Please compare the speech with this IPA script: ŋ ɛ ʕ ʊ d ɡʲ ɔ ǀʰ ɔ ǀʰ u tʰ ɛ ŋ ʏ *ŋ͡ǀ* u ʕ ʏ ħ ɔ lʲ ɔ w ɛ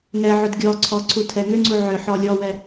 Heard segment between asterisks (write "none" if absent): ŋ͡ǀ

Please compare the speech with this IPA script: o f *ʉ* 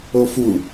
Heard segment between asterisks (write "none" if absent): u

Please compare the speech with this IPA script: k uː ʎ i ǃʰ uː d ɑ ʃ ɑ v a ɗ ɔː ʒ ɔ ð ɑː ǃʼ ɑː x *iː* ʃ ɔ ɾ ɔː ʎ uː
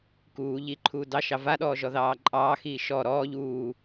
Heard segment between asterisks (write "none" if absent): iː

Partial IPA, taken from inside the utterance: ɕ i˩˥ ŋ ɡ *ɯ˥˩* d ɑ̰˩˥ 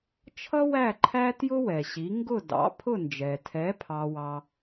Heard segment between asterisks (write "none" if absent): ʊ˥˩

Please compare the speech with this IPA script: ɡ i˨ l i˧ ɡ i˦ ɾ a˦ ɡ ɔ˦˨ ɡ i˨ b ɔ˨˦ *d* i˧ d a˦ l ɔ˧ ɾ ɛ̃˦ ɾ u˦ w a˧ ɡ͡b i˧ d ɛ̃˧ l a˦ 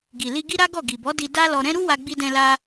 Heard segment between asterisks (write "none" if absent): d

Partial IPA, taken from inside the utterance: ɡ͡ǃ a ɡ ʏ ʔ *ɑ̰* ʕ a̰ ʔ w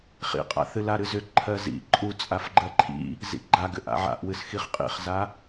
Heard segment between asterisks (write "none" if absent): a̰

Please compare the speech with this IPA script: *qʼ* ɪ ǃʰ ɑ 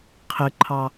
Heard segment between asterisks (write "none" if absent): qʰ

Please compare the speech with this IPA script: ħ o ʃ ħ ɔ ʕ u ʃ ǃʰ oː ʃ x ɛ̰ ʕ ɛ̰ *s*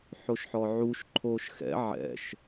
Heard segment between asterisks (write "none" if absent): ʃ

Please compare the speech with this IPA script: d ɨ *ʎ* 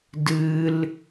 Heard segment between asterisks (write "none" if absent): l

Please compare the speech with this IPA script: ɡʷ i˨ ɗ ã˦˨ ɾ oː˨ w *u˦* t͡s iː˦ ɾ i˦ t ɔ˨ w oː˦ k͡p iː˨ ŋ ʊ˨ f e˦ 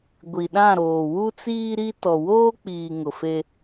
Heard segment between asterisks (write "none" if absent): u˦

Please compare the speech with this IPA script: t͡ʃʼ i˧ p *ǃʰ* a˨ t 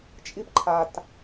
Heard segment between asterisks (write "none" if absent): ǃʰ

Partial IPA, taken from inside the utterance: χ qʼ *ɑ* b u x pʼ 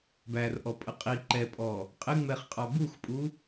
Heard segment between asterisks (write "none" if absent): ɑ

